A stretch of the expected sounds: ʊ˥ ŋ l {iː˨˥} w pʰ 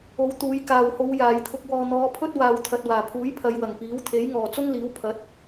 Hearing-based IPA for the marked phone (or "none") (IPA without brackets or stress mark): iː˨˥